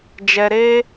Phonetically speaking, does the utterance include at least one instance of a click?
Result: no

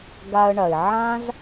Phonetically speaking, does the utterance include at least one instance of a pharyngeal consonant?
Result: yes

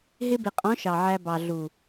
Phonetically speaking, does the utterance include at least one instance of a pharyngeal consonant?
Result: yes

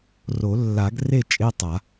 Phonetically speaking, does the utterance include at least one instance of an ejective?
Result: yes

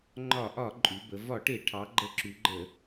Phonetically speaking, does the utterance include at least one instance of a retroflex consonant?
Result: yes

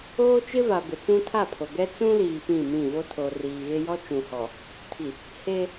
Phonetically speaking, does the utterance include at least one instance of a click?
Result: no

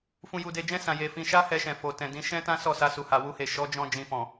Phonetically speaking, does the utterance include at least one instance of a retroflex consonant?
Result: no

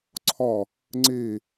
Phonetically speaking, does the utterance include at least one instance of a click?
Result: yes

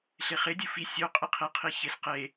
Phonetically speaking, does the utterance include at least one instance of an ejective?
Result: yes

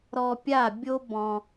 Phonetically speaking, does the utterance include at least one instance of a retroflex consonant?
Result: no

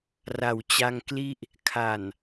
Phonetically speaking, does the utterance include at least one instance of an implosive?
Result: no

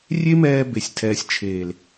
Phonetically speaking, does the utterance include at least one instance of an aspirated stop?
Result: yes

